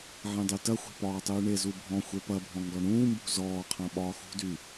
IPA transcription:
ʕ ẽ dˤ y t ɐ xʷ e̤ p ɒː tˤ yː ɳ e z u bʱ ɔ̃ xʷ e p ɐ bʱ ɔ̃ ŋ ɡ ɒ ɳ ũː m b ṳ z ɔː qʰ ɐ̃ ɓ ɒː x ṳ d y

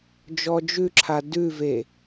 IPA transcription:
d͡ʒ ɔ d͡ʒ ʉ ǁʰ a d ʉ v e

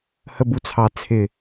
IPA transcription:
h ə b u t͡sʰ ɑ t͡sʰ ɪ

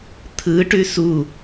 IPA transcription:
t̪ʰ ɯ ʈ ʉ s u

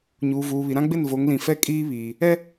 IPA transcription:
ɲ uː˨ v uː˨ β i˨ ɾ ã˦ ɡ͡b ɪ˦˨ n v o˨˦ ŋ l ĩ˨ f ɛ˦ kʼ iː˦ β iː˨ | ɛ˦

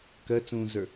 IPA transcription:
k ɜ t͡s ũː z ə˞

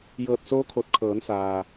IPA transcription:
j ɤː˧˩ t̚ s oː˧˥ kʰ o˧˩ t̚ kʰ ɤː˩˧ n s aː˩

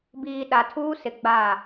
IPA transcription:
b iː˨ ɗ a˨ tʰ uː˦ s ɪ˨ ɡ͡b a˦˨

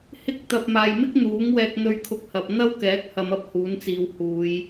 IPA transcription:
h ɪ˥ k̚ t̪ ɐ˨ p̚ m aː˨ j m ɪ˥ k̚ n̪ uː˨˥ ŋ w ɛː˧ k̚ n̪ ɵ˥ ɥ kʰ ʊ˥ k̚ h ɐ˧ p̚ n̪ ɐ˥ w k ɛː˨˥ k̚ h ɐ˨˧ m ɐ˥ p̚ h uː˨˥ n t͡s iː˨ w h uː˨˧ j

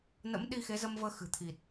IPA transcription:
n ə̰˧˥ m ɗ i˧ x e˨˦ z ə˧ m v əː˧ x ɨ̤˨˩ t̪ʰ i˨˩ t̚

